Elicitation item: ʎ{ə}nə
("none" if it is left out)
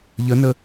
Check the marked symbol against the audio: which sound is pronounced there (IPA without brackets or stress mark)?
ə